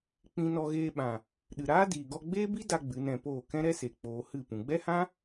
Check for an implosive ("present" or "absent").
present